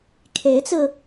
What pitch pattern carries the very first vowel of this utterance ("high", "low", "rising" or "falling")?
rising